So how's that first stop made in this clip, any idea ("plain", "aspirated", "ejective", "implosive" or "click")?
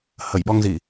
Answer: implosive